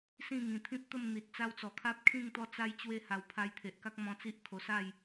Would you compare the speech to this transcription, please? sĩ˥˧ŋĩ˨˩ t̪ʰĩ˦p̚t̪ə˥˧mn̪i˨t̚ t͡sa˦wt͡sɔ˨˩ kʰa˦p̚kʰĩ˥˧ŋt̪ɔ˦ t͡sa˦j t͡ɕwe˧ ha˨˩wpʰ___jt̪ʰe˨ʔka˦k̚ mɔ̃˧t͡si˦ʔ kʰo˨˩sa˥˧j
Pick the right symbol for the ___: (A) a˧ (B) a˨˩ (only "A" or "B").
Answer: A